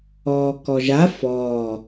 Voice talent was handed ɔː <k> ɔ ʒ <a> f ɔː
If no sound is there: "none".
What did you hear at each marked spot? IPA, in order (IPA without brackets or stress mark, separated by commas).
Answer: k, a